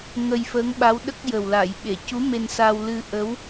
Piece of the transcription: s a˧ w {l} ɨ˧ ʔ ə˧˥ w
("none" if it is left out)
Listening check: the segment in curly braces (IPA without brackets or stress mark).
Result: l